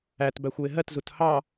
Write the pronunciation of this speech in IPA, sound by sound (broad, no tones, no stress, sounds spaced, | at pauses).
æ t b æ xʷ w ɪ ɦ ɜ t z u t h ɑ